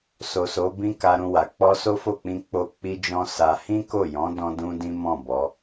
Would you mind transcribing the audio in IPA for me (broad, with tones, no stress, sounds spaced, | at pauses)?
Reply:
s o˨ s o˨˦ b ĩ˦ k a˧ ɾ ũ˧ w a˨ k͡p ɔ˧ s o˦ f o˦˨ k͡p ĩ˧ k͡p o˧ k͡p i˦ d͡ʒ ɔ̃˦ s a˧ h ĩ˦ k o˦˨ j ɔ̃˨˦ d ɔ̃˦ d ũ˦ d ĩ˦ m ɔ̃˦˨ b ɔ˨˦